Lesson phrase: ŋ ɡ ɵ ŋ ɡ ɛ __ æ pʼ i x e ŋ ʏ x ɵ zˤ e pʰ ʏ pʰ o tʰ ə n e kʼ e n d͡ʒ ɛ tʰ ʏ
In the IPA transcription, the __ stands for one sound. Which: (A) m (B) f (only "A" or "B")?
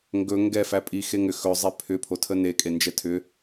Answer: B